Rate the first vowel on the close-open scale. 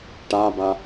open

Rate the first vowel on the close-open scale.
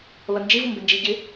open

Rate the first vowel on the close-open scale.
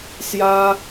open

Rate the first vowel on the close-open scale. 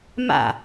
open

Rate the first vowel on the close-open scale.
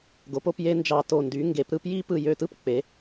mid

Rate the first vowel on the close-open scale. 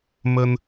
mid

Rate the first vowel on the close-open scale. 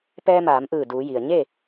mid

